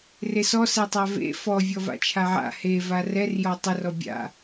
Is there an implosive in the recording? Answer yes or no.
no